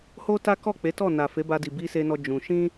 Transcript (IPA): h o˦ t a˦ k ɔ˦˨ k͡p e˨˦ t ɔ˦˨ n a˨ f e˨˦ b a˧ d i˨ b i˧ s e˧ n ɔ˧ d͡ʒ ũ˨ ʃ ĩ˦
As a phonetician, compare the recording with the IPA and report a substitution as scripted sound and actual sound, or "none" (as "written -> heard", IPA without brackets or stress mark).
ũ˨ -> ũ˧